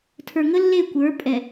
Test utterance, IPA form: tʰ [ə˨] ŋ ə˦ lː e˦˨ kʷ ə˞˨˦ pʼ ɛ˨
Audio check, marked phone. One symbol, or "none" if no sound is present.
ə˞˨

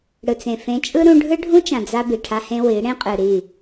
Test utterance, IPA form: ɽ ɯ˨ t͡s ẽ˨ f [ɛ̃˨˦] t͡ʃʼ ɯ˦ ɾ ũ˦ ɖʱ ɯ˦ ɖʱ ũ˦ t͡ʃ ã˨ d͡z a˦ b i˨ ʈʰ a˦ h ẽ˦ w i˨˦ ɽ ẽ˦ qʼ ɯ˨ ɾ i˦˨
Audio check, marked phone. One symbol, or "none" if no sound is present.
ẽ˨˦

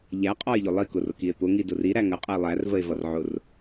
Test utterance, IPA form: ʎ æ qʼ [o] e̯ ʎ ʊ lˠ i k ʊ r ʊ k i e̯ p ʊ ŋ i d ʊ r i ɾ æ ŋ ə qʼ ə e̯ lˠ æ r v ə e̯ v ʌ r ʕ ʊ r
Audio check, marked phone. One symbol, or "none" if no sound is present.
ɔ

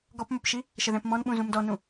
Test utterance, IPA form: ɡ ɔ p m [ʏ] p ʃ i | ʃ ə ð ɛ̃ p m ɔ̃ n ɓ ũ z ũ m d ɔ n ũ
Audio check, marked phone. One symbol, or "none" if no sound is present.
ʏ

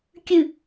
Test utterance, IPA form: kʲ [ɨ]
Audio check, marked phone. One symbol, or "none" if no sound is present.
ɨ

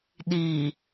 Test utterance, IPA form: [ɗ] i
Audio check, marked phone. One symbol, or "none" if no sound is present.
ɗ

